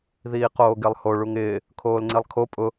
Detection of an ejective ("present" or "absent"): present